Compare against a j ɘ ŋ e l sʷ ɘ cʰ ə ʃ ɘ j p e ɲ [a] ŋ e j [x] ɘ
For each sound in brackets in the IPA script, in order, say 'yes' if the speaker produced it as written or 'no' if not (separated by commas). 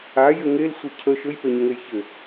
no, no